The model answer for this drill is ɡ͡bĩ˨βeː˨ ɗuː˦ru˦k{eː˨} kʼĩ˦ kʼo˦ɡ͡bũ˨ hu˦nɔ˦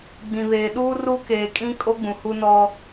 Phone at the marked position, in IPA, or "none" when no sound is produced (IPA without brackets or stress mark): eː˨